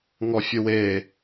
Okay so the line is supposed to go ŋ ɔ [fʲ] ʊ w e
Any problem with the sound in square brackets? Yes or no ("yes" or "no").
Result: no